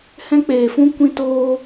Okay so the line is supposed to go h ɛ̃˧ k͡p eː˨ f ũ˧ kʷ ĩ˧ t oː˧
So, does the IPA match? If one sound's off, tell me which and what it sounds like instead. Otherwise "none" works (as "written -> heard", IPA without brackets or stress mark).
none